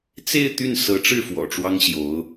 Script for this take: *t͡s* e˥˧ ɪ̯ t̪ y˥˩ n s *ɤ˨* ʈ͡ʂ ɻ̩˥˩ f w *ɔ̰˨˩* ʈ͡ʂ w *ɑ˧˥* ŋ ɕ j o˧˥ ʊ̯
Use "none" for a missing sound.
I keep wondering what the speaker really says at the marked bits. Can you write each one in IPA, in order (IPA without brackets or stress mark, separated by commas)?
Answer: t͡s, ɤ˧˥, ɔ̰˨˩, ɑ˥